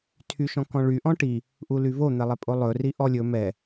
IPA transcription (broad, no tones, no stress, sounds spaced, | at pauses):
tʰ y ʃ ɔ̃ k ɔ̃ ɭ y ʔ ɔ̃ ʈ i | ʔ u l y v o n̪ ɛ lˠ ɛ pʼ o lˠ ɵ r i ʔ ɔ lʲ ɵ m ɛ